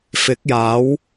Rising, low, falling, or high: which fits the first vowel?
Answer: rising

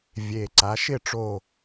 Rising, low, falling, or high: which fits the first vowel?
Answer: low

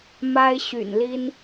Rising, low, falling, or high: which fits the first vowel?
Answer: high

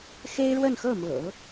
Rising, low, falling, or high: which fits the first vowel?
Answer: high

